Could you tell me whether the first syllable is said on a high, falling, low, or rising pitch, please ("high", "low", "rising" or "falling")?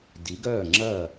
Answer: rising